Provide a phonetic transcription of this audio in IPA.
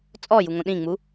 t͡sʼɔjuŋõ ɗĩŋ͡mu

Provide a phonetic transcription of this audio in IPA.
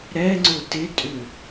ɾɛ ŋ͡ǀʊtɪtʼʏ

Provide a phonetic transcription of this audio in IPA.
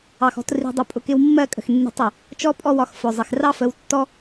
ɑ˨xɔ̤˧t ri̤˧dˤʊ˧ pʼʊ˨kɪ˧w mːɜ˦˨kʼə̤˨x nːi̤˧tˤʊ˨ | t͡ʃɔ˦pʼɔ˦wɒ˧x fʊ˨zˤɪ˨x rɑ˦fə˧wtːɔ˦

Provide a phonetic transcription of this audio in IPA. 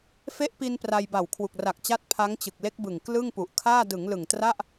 fe˦˥ʔpi˧n pra˧jba˨˩w kʰwu˨˩k̚ra˨˩k̚t͡ɕa˦˥t̚ pʰa˦˥ŋt͡ɕɯ˨˩k̚le˦˥k̚bɯ˨˩ŋ klɯ˥˩ŋpu˨˩ʔ kʰaː˥˩ dɯ˩˦ŋlɯ˨˩ŋtra˥˩ʔ

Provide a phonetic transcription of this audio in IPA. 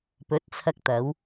pɵ˨˥t̚t͡sʰɐ˧k̚ t̪ɐ˨˧w

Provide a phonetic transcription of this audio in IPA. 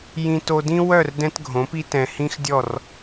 jĩ˨to˨dĩ˦wœ˦˨r dɛ̃˦tɡʱõ˨˦pi˦tɛ̃˨ hĩ˦xdʲɔ˦˨r

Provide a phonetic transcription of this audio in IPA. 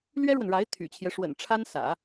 lɥɛ˥ɻwə˨nɻa˧˥ɪ̯ t̪ʰy̰˨˩t͡ɕʰjɛ˦ʂwə̰˨˩n ʈ͡ʂʰa˥n sä̰˨˩˦

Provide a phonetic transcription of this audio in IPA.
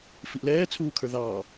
fiʔlɛːt͡sʰuːkʰə˞ ðɑː

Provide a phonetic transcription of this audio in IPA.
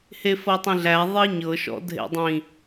hefɤtˤĩɮæ ðˤiɲɤ ʃɔ̰dʱḛdˤĩ

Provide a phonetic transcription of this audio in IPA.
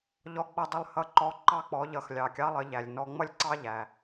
ʎɔ˧ɡ͡bʌ˧dˤɪ˧lˠ hʌ˧˥ǃɔ˧˥ ǃɑ˧k͡pɔ˩˧ʎʌ˩˧x lʲɑ˩kʲɑ˧˥lˠə˩˧ʎæ˩lʲ nɔ˧ŋ͡mʌ˥lʲǀɑ˥ʎæ˩

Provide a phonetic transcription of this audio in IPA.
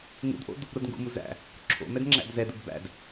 ŋṵdʔo̰d | ɾodŋɡṵmu zæ̰ | ǁʰo̰ mɛdŋ͡ǁæ̰dzɛdud bæ̰d

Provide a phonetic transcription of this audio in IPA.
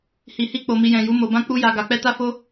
hi˨hi˧k͡po˨ mi˨jɛ̃˨ju˨˦ mo˧bã˦ k͡pu˦ja˧ɡa˧k͡pɛ˦ ta˦fo˦

